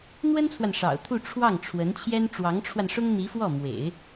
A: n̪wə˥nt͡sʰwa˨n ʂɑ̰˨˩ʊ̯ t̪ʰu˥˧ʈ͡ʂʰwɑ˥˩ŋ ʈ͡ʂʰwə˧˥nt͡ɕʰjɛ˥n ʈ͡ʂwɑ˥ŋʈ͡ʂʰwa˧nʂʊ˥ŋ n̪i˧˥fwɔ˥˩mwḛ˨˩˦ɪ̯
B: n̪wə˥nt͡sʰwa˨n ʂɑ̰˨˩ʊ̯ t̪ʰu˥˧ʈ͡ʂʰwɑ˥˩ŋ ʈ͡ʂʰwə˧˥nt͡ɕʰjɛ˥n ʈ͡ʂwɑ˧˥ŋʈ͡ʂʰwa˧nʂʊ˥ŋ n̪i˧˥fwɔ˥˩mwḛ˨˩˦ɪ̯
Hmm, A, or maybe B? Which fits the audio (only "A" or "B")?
B